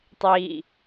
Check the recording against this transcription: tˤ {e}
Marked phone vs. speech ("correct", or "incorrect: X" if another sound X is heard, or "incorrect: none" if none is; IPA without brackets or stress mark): incorrect: i